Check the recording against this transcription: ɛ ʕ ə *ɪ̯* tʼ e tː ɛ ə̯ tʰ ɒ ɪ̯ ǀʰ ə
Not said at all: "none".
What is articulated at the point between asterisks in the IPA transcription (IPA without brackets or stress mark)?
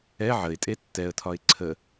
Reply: ɪ̯